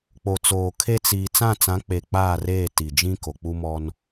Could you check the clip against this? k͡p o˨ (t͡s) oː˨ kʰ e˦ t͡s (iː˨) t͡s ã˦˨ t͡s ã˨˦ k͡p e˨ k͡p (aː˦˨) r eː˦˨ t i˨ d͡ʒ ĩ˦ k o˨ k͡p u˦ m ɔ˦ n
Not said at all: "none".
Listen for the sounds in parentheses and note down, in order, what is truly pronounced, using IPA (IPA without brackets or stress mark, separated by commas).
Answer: t͡s, iː˨, aː˦˨